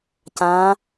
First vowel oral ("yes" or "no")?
no